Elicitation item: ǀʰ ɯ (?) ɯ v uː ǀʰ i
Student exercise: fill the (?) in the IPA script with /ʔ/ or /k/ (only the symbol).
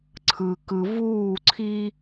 k